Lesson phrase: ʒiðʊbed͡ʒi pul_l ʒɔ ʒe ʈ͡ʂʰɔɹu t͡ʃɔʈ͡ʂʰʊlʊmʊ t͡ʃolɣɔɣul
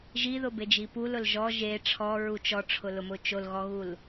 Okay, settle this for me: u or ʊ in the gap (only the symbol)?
ʊ